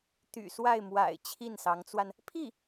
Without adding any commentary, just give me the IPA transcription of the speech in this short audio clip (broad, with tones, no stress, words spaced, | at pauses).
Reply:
t̪y̰˨˩swa˥˩ɪ̯mwa̰˨˩ɪ̯ t͡ɕʰi˥˩nsɑ˧˥ŋt͡swa˧n | pʰi˥˩